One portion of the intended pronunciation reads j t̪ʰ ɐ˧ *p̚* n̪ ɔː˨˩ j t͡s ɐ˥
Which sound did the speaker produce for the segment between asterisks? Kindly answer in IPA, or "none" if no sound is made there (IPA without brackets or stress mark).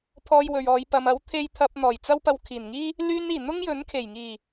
p̚